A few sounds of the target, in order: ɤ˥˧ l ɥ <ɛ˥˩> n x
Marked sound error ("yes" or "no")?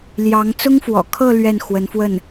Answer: no